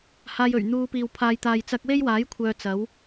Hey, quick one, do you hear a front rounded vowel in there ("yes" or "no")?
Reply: yes